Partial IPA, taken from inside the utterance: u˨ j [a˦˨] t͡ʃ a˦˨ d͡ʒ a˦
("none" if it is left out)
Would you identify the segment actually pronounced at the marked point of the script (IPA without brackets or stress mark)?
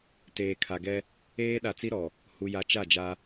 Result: a˨